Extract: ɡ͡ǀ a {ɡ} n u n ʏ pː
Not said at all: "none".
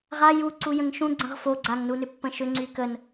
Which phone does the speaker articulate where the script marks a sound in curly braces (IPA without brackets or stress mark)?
ŋ